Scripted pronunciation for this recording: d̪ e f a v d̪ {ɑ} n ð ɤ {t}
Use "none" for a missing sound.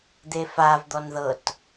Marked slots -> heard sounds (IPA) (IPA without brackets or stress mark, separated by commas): ɔ, t